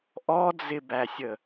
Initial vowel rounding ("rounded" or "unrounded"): rounded